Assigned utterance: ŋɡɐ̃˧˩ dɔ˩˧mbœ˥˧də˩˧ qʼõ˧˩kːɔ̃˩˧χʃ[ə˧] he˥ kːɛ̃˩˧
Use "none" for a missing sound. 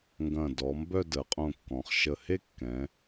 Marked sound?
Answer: ə˧˩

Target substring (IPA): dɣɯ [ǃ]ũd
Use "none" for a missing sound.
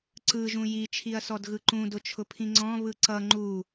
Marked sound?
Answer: ǃ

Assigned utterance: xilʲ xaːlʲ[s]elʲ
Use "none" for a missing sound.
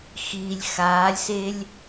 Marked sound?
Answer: s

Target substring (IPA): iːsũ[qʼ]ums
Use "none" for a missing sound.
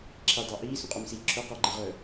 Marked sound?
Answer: qʼ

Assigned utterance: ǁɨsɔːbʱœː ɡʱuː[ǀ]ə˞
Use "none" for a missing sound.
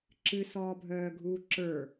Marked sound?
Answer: ǁ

